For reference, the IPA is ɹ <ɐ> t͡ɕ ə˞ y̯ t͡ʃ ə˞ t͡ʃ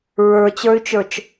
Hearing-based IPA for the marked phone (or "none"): ə˞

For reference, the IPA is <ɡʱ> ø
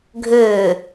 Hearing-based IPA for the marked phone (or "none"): ɡʱ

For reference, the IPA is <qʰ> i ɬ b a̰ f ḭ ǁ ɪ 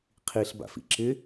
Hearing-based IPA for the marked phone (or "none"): qʰ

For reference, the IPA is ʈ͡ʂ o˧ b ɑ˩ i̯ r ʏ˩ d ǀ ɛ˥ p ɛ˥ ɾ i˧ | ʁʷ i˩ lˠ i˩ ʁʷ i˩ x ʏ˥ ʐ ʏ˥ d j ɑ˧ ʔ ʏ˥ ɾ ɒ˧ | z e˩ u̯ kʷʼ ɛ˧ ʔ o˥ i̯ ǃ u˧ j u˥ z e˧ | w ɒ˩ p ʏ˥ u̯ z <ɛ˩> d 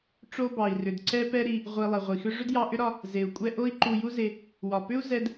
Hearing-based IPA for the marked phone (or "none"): ɛ˧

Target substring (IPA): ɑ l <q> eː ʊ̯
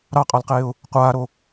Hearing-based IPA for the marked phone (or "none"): q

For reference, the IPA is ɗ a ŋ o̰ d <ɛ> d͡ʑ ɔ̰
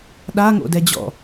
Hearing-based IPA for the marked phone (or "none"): ɛ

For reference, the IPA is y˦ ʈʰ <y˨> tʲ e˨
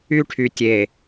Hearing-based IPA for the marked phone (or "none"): y˨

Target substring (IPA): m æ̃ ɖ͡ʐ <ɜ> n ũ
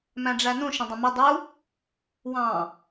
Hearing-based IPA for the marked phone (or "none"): æ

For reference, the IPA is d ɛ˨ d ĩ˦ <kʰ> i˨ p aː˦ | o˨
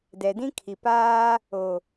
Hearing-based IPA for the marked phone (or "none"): kʰ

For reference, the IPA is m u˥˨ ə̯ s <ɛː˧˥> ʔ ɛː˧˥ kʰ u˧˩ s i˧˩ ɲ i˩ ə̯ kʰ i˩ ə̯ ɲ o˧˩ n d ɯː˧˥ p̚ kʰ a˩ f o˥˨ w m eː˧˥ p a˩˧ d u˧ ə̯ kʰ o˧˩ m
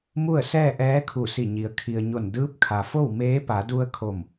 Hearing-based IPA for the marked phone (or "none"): ɛː˥˨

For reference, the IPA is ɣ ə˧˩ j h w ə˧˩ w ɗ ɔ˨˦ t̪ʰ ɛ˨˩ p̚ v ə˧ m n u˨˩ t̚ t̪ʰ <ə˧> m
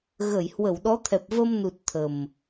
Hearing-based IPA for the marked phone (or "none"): ə˨˩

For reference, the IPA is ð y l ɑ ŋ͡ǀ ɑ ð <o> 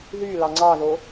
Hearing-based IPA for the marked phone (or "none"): o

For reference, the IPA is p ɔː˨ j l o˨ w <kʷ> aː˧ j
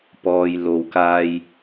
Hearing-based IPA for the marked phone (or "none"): k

